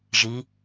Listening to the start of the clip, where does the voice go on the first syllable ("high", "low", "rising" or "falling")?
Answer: rising